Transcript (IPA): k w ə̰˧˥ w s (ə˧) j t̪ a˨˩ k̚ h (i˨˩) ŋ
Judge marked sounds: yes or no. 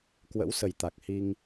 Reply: no, no

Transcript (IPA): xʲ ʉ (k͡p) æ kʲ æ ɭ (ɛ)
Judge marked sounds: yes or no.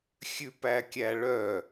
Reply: no, no

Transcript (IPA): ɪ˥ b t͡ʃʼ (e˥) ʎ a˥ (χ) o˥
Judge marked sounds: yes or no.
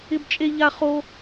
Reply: yes, yes

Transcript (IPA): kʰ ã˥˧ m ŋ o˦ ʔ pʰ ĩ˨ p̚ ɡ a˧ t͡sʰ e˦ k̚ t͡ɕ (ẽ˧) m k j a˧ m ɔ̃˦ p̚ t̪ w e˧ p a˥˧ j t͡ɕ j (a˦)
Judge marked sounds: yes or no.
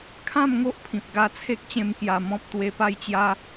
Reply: yes, yes

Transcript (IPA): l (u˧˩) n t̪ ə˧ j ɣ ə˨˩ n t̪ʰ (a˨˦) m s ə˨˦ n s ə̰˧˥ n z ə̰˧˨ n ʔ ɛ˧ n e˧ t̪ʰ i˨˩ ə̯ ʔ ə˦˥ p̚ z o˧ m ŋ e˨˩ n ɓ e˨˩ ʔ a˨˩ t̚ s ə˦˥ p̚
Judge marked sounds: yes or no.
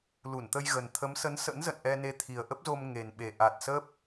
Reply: yes, no

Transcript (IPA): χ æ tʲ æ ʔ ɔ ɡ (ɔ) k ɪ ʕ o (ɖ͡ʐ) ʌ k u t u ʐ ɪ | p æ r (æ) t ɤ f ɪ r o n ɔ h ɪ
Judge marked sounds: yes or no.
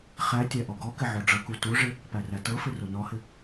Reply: yes, yes, yes

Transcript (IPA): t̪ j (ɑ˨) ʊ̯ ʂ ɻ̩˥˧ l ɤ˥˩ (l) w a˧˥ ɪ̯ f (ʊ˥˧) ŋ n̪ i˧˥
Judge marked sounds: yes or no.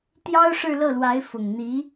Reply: no, yes, no

